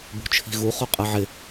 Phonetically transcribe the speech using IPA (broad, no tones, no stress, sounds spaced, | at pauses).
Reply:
b ṳ t͡ʃʰ i̤ ɣ u χ o qʼ ɜ ʕ ɪ